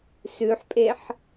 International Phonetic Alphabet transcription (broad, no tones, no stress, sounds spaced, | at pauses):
s ʉ ħ pʼ e ħ